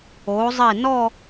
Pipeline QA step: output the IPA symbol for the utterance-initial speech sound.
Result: o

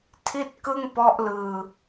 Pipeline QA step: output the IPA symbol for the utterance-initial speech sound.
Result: tʰ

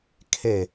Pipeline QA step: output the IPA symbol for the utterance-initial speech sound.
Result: kʰ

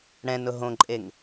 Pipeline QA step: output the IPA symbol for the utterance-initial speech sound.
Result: ɽ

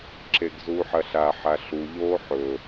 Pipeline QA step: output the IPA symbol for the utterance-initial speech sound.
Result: ǁ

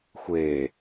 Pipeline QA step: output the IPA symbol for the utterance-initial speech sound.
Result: xʷ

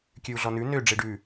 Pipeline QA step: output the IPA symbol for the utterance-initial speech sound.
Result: kʲ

